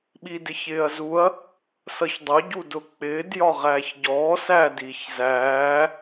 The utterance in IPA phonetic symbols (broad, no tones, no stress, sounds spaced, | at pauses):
ɓ i d ɪ ç ɪː ɐ̯ z u ɐ̯ | s ʌ ç dˤ ʊ ɟ u d ʊ k͡p ɪː d j ɒ ʁ æː ç ɟ ɔː s æ d iː ç z æː